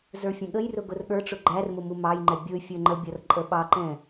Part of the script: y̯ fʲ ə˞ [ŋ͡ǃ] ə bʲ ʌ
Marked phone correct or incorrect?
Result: correct